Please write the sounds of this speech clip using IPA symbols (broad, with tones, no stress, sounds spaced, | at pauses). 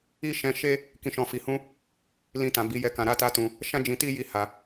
i˦ ʃ ɛ̃˧ ʃ e˦ | k ĩ˧ ʃ ɔ̃˧ f i˧ h ũ˦ | l ĩ˧ t ã˨ b i˨˦ j ɛ˦˨ k ã˧ ɾ a˧ t a˧ t ũ˧ | ʃ ã˦ d͡ʒ ĩ˧ t i˦ j i˦ h a˧